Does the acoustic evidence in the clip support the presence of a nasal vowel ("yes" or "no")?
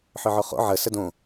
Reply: yes